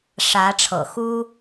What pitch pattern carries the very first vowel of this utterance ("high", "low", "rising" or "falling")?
rising